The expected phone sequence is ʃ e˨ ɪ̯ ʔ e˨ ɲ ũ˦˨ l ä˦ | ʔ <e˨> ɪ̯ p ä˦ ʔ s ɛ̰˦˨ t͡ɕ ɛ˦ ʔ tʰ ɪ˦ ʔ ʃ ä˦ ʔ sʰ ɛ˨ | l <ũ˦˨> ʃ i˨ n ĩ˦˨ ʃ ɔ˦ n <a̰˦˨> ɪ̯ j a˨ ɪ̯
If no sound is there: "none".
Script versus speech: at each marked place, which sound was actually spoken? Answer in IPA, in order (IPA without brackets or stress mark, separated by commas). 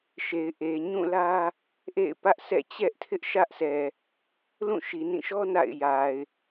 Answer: ḛ˦˨, ũ˦˨, a̰˦˨